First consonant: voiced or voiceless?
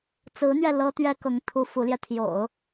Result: voiceless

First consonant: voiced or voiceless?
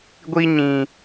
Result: voiced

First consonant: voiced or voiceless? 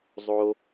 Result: voiced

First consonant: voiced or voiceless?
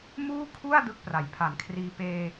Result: voiced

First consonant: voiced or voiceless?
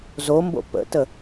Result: voiced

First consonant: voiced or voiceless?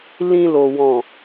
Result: voiced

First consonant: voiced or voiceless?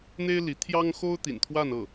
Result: voiced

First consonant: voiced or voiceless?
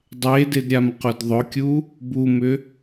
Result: voiced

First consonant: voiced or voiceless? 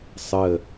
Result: voiceless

